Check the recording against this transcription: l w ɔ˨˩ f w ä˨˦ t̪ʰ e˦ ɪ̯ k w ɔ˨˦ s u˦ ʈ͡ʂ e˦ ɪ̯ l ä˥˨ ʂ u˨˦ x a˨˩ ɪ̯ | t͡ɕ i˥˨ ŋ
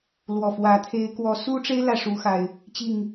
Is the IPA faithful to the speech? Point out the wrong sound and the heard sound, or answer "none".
none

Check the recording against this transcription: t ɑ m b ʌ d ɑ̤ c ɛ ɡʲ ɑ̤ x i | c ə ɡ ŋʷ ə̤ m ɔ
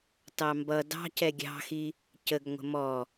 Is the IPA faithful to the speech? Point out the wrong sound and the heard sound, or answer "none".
none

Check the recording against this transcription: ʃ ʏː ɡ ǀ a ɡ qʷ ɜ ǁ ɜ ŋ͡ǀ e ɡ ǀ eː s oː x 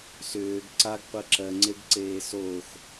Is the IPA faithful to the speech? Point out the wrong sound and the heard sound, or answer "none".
ʃ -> s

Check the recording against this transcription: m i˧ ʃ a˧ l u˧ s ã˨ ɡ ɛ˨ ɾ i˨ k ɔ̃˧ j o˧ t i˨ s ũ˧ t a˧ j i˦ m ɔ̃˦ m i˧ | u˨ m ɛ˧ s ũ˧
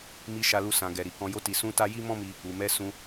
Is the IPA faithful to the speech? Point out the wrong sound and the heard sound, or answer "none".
none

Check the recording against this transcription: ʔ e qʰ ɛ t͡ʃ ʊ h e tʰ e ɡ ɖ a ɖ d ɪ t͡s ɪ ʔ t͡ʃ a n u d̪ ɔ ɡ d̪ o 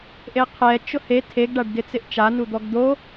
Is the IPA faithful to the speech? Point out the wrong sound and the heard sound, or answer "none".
none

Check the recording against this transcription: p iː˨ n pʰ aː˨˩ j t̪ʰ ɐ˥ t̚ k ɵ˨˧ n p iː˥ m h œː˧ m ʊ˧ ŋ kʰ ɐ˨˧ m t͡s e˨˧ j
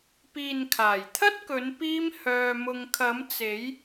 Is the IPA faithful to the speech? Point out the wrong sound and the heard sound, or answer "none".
pʰ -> kʰ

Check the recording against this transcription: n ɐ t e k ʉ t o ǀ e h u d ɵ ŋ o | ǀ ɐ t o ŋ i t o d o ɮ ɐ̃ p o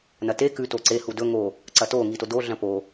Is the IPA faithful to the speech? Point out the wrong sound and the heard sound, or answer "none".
none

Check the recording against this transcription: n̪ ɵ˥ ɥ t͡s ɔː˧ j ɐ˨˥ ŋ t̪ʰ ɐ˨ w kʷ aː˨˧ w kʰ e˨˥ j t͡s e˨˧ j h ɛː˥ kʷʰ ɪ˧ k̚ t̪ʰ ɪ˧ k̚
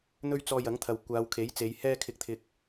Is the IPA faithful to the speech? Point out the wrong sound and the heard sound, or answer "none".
kʷʰ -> kʰ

